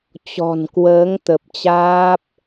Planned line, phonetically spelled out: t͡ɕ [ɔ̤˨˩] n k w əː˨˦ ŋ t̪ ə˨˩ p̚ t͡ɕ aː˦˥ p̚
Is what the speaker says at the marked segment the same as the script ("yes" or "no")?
yes